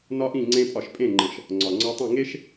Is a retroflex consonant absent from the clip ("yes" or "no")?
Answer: yes